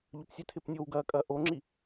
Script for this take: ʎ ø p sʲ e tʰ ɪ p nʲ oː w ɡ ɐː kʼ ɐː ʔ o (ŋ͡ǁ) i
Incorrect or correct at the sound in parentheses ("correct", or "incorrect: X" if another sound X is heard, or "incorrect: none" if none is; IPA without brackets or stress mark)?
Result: correct